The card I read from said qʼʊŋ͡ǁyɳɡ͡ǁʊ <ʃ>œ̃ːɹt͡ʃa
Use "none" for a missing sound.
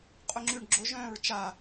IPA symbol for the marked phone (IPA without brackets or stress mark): ʒ